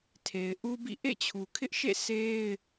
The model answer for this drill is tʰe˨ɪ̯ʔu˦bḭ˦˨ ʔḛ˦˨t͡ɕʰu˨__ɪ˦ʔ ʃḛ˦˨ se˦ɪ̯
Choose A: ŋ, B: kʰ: B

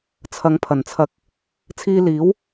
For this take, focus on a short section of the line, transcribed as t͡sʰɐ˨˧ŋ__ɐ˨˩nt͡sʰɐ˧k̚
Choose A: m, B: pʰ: B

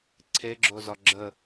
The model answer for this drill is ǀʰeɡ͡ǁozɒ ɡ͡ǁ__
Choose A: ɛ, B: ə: B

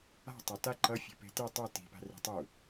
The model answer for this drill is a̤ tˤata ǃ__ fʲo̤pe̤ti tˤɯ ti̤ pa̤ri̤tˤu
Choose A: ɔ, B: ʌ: B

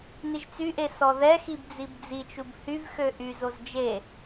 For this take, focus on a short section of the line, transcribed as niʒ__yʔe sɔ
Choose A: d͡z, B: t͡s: B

